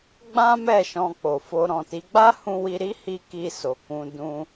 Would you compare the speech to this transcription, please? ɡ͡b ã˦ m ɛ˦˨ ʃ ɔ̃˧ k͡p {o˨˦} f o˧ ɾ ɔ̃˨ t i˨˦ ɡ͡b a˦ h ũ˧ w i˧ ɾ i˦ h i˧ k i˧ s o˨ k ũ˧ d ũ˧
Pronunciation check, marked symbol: incorrect: o˨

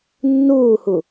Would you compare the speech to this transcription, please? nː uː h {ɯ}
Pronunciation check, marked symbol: incorrect: u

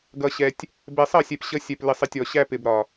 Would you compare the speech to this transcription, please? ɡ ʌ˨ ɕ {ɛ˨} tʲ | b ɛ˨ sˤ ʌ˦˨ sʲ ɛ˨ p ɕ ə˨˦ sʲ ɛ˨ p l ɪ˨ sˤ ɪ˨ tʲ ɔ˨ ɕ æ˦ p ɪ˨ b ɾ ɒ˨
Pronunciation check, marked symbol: correct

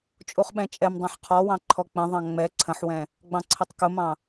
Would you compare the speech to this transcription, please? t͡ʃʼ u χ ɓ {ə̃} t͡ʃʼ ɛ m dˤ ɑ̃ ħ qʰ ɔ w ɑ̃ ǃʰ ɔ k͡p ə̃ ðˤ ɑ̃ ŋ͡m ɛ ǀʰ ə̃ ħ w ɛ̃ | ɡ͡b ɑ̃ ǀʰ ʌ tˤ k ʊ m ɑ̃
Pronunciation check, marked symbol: incorrect: ɛ̃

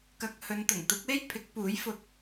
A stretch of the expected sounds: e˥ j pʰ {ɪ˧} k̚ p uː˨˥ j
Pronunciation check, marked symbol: incorrect: ɪ˨˥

